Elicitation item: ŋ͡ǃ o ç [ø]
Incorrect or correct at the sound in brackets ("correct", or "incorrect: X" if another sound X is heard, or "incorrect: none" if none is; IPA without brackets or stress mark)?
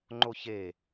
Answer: incorrect: e